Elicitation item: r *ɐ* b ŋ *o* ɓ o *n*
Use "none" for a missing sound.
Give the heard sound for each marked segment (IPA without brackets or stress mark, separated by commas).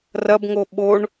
ɐ, o, ɳ